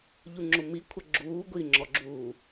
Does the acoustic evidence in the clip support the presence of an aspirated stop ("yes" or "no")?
yes